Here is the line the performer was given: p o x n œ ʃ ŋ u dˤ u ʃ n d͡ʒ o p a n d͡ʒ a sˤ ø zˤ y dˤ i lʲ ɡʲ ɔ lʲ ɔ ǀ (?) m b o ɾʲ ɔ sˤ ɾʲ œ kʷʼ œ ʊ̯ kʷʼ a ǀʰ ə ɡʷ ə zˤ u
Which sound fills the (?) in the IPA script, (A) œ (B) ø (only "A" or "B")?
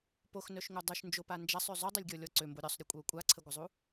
B